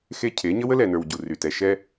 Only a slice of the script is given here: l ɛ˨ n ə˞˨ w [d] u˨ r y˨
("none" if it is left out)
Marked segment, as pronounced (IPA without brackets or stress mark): ɟ